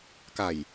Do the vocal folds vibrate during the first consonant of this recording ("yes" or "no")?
no